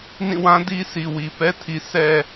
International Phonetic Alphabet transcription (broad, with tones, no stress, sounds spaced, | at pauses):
n ĩ˦˨ w ã˦ d i˦ sʰ i˨ w i˨ p ɛ˦ tʰ i˨ sʰ ɛ˨